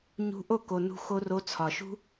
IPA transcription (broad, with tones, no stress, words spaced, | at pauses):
ɲṳ˧ʔo˦˨ ko˨nṳ˧ xo˧ro˧ t͡sʰɒ˨ʃṳ˦